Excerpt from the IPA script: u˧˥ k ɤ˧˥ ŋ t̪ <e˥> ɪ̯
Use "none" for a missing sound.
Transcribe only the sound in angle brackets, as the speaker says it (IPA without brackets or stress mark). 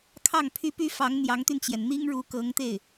e˥˩